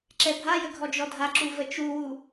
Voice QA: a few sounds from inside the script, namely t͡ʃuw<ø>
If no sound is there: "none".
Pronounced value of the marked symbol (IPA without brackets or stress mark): u